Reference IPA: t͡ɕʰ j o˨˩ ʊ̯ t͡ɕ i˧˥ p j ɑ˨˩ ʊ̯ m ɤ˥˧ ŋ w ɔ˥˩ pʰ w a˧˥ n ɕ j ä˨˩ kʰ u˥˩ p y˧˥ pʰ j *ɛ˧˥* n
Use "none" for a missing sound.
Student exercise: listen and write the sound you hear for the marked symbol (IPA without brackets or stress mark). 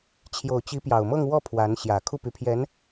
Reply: ɛ˧˥